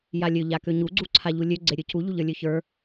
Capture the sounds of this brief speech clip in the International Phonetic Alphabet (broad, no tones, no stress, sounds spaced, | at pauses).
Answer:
j a lʲ ø ʎ a k ø ɲ u ɡ͡ǀ u ǀʰ a ʎ u lʲ ø ɡ͡ǀ e ɾʲ ø c u ʎ u ʎ ə˞ lʲ ø ç ə˞